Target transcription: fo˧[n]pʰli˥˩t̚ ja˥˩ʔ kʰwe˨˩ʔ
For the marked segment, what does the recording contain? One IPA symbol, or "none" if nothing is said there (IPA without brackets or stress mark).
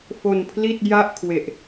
n